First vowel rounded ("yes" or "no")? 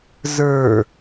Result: no